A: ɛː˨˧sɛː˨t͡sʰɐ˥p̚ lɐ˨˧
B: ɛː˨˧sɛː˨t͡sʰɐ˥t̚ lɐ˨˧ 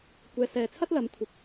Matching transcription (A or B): B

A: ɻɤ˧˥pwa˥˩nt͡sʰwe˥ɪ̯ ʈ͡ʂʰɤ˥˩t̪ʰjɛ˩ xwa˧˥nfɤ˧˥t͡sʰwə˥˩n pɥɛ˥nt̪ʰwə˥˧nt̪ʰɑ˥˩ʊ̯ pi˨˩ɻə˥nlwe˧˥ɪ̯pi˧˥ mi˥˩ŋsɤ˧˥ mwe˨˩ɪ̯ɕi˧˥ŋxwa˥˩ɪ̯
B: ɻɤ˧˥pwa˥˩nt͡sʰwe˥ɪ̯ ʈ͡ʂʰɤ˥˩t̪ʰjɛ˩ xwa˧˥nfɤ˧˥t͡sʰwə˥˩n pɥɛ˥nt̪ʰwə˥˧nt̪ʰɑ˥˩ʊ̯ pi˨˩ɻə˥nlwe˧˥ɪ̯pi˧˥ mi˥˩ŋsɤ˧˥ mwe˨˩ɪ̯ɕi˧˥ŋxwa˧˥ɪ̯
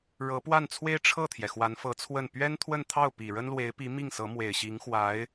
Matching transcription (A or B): B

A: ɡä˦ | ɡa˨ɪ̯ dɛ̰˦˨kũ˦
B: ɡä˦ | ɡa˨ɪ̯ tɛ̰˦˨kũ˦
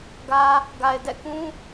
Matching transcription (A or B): A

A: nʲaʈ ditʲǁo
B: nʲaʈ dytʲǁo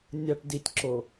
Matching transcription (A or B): A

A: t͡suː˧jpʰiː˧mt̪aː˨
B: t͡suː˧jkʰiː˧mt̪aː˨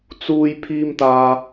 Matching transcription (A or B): A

